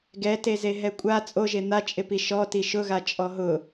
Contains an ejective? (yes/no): yes